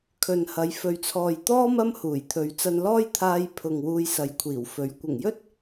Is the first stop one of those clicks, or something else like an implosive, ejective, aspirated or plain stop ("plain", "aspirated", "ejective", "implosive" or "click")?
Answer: aspirated